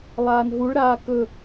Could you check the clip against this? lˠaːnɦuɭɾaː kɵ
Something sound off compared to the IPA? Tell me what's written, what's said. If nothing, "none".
none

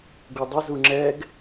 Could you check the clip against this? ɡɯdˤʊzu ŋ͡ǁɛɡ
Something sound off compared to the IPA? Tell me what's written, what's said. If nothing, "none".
ɯ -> u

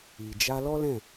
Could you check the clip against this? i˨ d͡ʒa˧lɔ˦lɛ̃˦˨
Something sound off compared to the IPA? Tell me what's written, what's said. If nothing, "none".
none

